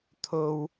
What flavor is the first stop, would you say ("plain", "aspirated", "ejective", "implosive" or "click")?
aspirated